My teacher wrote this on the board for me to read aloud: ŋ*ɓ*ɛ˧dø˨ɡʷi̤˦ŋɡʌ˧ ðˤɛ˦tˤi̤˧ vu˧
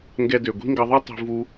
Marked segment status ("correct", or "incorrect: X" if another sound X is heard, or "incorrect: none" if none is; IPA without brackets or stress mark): incorrect: ɡ